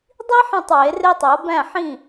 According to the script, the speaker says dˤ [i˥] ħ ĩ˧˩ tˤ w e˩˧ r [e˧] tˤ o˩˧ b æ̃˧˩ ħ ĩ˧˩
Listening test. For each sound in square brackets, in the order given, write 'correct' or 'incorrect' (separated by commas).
correct, correct